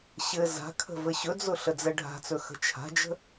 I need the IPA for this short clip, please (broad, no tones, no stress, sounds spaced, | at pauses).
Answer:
ɕ ɘ z a̤ kʰ ə̤ v ɘ ɕ ɵ d͡z ʊ ɬ ə d͡z ɛ ɖʱ a̤ t͡s ɵ x ə̤ t͡ʃʰ a̤ d͡ʒ ə̤